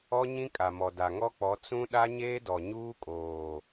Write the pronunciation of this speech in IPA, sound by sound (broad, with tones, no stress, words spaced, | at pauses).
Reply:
ɔ˦ɲĩ˦kʼa˨mɔ˨ da˨ŋɔ˦k͡pɔ˨˦ t͡sũ˦ ɗa˦ɲeː˦dɔ˨ ɲuː˦kʼoː˨